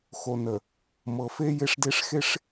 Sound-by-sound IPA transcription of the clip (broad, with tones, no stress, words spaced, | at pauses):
xo˨ nə˨ | mɤ˨fe˦ je˦ʂde˦ʂ xe˦ʂ